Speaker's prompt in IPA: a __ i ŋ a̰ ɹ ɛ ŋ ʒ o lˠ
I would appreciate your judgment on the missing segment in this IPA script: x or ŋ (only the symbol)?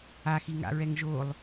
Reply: x